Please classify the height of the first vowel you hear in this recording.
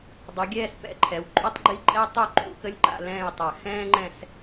high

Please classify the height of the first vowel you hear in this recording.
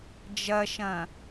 low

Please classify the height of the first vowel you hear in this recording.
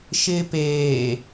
high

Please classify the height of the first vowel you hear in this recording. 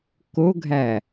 mid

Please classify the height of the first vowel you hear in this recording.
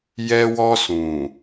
mid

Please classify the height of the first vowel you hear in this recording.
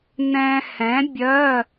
mid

